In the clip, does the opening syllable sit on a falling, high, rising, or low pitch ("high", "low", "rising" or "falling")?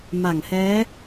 low